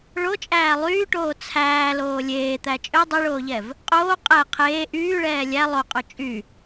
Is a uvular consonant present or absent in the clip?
present